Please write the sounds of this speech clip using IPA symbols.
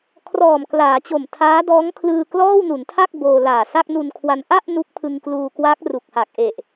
kʰ r ɔː˨˩ m k l aː˩˦ t͡ɕ o˨˩ m tʰ aː˦˥ d ɔː˦˥ ŋ kʰ l ɯː˧ k l ɔː˥˩ w n u˩˦ n tʰ a˥˩ k̚ b oː˧ l aː˨˩ s a˥˩ k̚ n u˧ n kʰ w a˧ n ʔ a˥˩ ʔ n u˦˥ k̚ pʰ ɯ˧ ŋ k l uː˧ k w a˦˥ k̚ r u˨˩ k̚ h a˨˩ k̚ ʔ e˨˩ ʔ

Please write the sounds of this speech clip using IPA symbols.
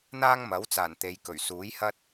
n̪ aː˥ ŋ m ɐ˨˥ w t͡s aː˨˩ n t̪ e˨˧ j k ɵ˨˩ ɥ s uː˨˥ j h ɐ˥ t̚

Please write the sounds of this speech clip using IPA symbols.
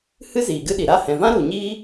h ɨ˦ z iː˨ ɡ ɨ˦ ɗ i˨ ɾ a˦˨ h ɛ̃˨ v ã˦ ɾ u˨ ɲ iː˦

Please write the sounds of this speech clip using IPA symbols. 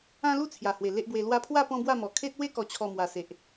ã˦ l u˥˧ t͡sʰ j a˨˩ h w e˨˩ l e˦ ʔ b w e˧ l w a˧ pʰ w a˥˧ p ɔ̃˦ b w a˥˧ m ɔ˨˩ kʰ e˦ t̚ w e˦ k ɔ˨˩ t͡ɕʰ ɔ˨˩ m w a˨˩ s e˨ ʔ

